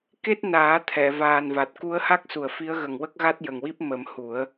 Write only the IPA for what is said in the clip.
ke˦˥t̚naː˨˩˦ t̪ʰɛ˨˩˨vaː˨˩nva˨˩t̚ ku˧˥ə̯ha˦˥k̚su˨˩ə̯ fi˧˥ə̯ɣə˨˩ŋwə˦˥k̚ɣa˦˥t̚ jə˨˩ŋwi˦˥p̚ mə˨˩˦mhu˨˩˦ə̯

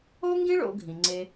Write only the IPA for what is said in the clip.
o˥ŋɡĩ˥ɭo̰˨ɡʱĩ˩ ŋ͡ǀe˨

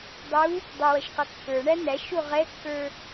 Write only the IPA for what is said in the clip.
dˤu | dˤʌwʌʃ qʌkːə˞ɳæ n̪æʃu ʁɛkːə˞

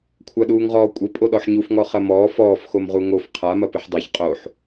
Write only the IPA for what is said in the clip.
kʷʰaɗuːŋʁɔːkʷʼɘ pʼoɗɔħɲufŋɔ χɐmɔː fɔːfxomʁu ŋof qʰamɐ pɨħdˤaç qʼoħ

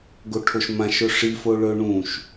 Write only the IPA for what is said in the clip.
ɡoʈʰoʃmãʃ ɵʂi foɭɵ ɳũʃ

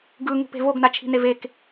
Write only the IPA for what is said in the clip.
ɡɯŋṳpe̤ voɡnat͡ʃʰi̤nev ek

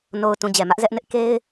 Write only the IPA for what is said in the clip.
no˨ʊ̯tũ˨ d͡ʑɛ˨mä˦ʔzɛ˦ʔ nɪ˦ʔke˦ɪ̯

